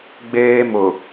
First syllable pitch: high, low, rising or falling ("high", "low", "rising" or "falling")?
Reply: high